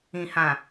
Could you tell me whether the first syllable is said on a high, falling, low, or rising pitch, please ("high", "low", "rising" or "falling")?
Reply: low